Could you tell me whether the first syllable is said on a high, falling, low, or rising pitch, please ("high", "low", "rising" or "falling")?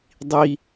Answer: low